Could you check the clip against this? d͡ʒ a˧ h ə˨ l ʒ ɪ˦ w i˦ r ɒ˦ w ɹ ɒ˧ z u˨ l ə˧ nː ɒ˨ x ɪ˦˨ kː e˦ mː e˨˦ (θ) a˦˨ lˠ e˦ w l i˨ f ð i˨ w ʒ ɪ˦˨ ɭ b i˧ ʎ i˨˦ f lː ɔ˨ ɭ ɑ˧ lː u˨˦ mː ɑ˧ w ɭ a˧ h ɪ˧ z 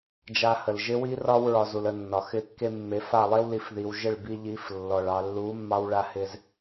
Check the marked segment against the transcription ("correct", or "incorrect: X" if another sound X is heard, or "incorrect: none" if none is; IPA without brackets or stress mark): incorrect: f